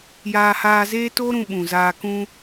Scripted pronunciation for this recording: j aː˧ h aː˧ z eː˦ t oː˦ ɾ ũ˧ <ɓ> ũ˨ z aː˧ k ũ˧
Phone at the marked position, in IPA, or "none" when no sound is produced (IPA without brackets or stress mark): ɓ